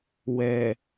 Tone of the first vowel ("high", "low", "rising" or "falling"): low